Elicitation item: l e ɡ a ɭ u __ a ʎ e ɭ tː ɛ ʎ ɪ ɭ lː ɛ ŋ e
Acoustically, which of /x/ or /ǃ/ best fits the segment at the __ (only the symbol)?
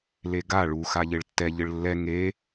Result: x